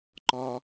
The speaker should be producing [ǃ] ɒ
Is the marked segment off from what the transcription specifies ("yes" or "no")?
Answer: no